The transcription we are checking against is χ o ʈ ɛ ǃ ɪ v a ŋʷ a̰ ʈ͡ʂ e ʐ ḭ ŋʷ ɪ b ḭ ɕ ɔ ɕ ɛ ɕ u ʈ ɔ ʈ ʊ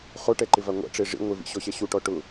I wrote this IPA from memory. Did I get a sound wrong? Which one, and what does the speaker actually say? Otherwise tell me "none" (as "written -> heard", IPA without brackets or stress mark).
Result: b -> v